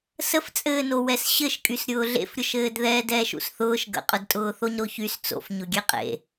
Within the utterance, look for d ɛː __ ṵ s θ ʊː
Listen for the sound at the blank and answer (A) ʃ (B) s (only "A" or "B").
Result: A